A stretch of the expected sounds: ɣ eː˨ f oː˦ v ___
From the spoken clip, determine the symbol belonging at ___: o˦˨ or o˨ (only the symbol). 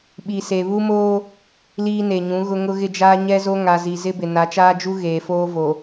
o˨